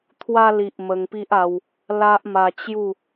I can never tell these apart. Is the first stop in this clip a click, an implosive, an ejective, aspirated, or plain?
aspirated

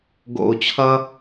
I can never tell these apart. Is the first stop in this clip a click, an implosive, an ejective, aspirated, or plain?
plain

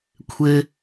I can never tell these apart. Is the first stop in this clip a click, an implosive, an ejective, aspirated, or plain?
aspirated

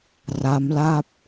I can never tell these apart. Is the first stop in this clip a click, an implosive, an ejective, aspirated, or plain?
plain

